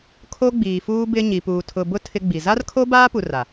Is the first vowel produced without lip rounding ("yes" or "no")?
no